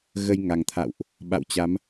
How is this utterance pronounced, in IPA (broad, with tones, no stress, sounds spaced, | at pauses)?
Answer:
ɣ ə˧ j ŋ a˨˩ ŋ t̪ʰ a̰˧˨ w ʔ | ɓ a̰˧˨ w t͡ɕ a˨˦ m